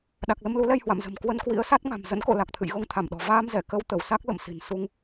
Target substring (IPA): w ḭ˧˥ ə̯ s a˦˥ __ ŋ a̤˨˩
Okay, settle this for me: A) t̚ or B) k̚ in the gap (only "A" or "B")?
A